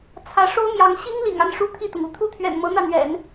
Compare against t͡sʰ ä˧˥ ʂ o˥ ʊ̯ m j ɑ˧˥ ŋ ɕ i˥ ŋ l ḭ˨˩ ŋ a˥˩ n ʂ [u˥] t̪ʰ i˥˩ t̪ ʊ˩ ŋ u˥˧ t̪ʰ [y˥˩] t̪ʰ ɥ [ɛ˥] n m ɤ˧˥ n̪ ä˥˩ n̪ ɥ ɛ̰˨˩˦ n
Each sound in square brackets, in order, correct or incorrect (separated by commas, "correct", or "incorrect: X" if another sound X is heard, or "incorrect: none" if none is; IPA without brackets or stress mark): correct, incorrect: u˥˩, incorrect: ɛ̰˨˩